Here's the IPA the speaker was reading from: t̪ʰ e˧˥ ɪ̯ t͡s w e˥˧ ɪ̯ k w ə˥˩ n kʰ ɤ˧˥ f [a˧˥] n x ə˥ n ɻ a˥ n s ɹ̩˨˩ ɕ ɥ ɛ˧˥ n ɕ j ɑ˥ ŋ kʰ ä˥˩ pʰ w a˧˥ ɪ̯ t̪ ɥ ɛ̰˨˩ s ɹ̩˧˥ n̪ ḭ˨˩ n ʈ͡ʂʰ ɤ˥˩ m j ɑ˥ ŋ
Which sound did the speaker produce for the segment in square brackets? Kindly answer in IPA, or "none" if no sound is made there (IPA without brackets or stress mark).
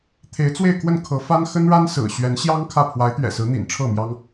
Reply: a˥